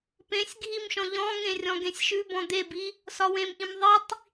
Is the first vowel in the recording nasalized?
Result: yes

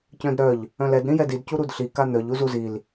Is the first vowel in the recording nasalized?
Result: yes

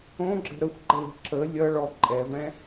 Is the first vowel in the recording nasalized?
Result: yes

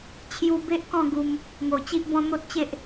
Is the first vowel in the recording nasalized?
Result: no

